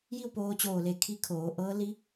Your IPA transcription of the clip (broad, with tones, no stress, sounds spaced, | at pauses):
j i˥˨ w p oː˧ t͡ɕ oː˧˩ l e˧˩ kʰ i˧˥ kʰ oː˩˧ ʔ ɤː˧˥ l i˧˥